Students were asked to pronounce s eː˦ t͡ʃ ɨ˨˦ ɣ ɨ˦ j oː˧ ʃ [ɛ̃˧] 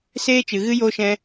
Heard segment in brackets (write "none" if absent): ɛ̃˧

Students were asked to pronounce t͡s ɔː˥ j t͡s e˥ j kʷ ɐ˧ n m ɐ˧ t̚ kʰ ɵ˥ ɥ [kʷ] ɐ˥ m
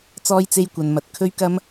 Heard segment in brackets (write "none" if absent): k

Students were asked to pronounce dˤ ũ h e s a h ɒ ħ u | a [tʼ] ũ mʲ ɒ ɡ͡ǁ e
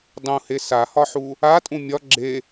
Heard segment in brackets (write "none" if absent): tʼ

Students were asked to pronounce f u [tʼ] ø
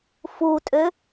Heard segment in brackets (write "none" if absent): tʼ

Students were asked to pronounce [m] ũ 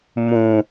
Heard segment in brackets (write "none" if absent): m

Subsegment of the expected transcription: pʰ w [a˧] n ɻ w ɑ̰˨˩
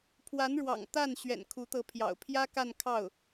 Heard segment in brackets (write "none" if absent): a˧˥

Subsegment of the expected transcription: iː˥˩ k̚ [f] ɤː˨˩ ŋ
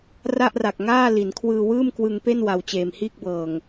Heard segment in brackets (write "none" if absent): b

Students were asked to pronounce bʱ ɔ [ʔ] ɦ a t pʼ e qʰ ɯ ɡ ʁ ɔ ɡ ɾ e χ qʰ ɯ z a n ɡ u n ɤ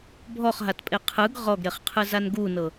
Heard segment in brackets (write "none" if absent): χ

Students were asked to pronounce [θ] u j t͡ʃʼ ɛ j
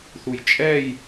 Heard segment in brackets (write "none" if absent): θ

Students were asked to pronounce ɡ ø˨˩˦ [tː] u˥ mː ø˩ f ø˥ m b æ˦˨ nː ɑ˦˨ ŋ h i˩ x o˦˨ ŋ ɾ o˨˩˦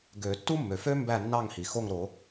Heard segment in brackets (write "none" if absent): tː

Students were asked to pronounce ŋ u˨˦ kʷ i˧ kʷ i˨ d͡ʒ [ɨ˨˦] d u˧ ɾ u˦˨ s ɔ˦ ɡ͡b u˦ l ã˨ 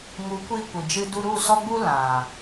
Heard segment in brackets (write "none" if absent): ɨ˧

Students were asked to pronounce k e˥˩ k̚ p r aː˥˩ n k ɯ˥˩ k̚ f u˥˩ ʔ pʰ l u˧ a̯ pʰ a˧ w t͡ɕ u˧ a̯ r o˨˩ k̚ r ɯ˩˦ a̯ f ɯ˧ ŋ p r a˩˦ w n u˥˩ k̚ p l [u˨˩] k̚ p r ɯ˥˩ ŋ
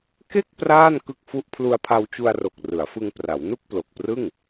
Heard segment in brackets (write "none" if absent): o˨˩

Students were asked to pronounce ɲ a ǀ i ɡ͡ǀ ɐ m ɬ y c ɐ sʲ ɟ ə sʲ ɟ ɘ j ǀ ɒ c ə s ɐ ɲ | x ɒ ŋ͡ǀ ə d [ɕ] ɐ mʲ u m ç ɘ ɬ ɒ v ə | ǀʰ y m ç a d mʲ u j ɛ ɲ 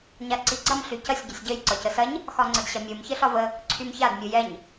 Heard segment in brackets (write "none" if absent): ɕ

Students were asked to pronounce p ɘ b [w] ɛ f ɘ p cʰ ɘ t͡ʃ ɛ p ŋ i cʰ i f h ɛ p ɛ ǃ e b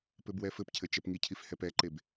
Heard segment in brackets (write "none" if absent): w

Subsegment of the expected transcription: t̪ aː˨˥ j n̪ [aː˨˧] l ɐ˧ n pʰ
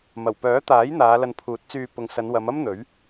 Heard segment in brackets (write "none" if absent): aː˨˧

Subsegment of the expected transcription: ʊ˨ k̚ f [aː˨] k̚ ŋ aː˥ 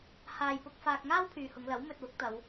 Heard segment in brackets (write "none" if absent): aː˧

